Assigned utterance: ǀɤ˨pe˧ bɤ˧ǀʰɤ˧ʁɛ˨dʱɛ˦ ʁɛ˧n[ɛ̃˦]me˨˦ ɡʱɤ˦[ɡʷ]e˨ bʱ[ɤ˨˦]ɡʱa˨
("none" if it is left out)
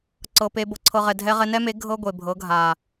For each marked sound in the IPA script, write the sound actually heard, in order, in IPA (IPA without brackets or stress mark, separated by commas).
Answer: ɛ˦, ɡʷ, ɤ˨˦